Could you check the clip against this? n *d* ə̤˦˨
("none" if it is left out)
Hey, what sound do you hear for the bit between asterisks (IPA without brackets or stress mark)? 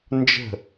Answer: d͡ʒ